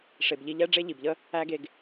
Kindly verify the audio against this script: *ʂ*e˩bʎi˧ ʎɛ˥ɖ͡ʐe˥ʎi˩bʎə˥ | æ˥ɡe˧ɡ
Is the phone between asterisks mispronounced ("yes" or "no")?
no